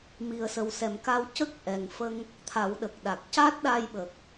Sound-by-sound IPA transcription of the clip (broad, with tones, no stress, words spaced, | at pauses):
mi˨˩ə̯sə˨˩wsɛ˨˩˨mka˧w cə˦˥k̚ʔɛ˨˩ŋfə˧ŋ | t̪ʰa˨˩˦wɗə˨˩k̚ɗa˨˩k̚ca˦˥t̚ ɗa˧j ɓə˨˩k̚